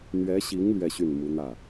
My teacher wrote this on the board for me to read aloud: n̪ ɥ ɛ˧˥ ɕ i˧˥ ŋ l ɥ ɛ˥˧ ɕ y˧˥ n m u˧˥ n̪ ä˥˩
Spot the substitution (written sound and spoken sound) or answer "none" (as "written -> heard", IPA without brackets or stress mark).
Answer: y˧˥ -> y˥˩